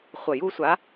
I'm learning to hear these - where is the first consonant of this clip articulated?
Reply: uvula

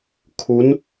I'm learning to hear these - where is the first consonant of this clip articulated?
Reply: velum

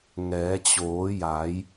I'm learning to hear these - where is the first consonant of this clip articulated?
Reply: velum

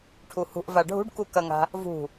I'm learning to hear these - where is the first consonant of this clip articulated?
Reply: retroflex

